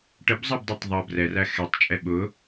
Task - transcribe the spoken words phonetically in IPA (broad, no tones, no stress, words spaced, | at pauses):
ʈəbzˤɑbdˤætˤ ðˤʌ brɛræ xɛtˤt͡ʃʼɛ ɓʊ